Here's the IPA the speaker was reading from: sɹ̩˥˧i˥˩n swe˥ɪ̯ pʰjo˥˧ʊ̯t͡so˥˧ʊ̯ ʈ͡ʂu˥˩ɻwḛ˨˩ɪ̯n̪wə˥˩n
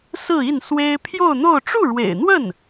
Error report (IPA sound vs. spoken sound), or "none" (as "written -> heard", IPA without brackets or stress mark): t͡s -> n̪